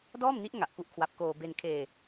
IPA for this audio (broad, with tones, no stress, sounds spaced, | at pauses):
d ɔː˥˩ m n i˦˥ ʔ ŋ a˨˩ ʔ k u˥˩ ʔ kʰ w a˦˥ p̚ k oː˧ b e˧ n kʰ eː˧